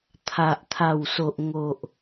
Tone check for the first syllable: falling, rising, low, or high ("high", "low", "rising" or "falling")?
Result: low